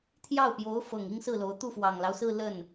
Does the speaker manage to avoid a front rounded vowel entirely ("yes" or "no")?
yes